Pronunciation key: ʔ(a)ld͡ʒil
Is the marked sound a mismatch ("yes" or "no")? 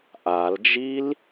no